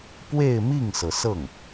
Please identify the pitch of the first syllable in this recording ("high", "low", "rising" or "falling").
falling